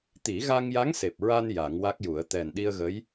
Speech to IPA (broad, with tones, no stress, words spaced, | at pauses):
t̪i˨˩˦ɣa˧ŋja˧˥ŋse˨˩p̚ ɹa˧n ja˨˩˦ŋwa˦˥k̚ju˨˩˦ə̯ t̪ɛ˨˩nɗi˧ə̯ɣə˧˥j